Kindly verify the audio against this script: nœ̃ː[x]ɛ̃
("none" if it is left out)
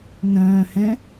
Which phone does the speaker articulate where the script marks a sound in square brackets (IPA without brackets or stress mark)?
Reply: h